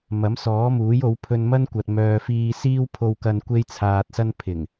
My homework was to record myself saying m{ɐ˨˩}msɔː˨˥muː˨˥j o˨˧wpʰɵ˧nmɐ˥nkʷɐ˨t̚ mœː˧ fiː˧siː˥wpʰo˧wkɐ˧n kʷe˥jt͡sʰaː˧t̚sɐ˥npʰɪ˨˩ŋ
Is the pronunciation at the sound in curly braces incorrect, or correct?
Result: incorrect: ɐ˨˥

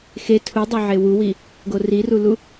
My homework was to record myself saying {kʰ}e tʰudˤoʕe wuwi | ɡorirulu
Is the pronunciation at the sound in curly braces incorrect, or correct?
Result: incorrect: x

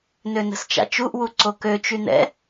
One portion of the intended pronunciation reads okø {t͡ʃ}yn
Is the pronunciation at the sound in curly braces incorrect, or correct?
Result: correct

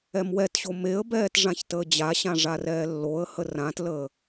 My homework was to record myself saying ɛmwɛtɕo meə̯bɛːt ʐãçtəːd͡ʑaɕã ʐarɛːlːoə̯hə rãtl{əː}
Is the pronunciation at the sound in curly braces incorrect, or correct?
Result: correct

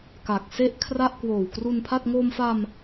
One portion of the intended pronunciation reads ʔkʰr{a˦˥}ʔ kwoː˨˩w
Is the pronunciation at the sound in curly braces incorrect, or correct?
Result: incorrect: a˥˩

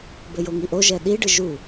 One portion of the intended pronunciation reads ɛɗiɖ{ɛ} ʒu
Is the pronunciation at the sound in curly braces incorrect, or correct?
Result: incorrect: ɨ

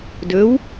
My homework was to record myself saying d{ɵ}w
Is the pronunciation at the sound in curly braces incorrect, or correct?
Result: correct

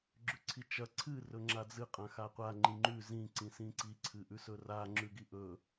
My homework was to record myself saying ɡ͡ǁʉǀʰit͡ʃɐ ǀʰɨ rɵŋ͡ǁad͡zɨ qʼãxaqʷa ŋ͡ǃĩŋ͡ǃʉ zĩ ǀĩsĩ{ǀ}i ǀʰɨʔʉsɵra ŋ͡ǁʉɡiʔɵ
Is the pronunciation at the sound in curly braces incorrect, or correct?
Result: correct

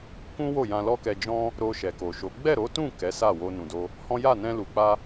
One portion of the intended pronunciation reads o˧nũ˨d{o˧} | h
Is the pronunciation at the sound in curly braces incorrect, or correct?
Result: correct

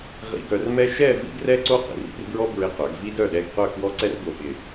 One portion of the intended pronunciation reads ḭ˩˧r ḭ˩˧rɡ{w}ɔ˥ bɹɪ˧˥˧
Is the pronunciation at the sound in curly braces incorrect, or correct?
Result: incorrect: ɹ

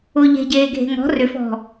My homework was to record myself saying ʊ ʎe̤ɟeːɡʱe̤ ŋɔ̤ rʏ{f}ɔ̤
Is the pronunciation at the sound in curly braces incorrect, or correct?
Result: correct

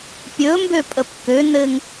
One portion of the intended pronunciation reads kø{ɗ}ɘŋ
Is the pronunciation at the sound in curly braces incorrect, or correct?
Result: incorrect: n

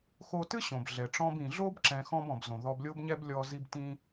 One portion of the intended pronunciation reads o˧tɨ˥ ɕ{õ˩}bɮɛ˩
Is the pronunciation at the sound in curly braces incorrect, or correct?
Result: correct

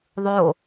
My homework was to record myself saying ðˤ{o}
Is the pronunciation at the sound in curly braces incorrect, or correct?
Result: correct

